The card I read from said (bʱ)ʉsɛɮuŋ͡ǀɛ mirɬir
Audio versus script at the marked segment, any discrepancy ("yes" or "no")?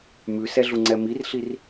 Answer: yes